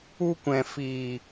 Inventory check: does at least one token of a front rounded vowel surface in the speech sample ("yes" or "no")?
no